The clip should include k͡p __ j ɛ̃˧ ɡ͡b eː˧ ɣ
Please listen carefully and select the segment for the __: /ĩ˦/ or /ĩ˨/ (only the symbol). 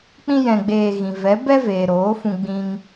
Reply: ĩ˦